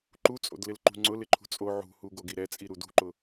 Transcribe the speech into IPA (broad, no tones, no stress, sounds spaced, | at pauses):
ǃ u t͡sʼ o̰ d l ɪ l ǃ ṳ ŋ͡ǀ ʊ l ɪ ǃʰ ṳ t͡sʼ o ʕ ṳ h u ɡ o ɡ i ɾ ɛ t͡sʼ i ɾ u d ṳ ǃ ʊ